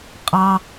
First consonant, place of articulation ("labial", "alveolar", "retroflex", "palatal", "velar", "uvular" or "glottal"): uvular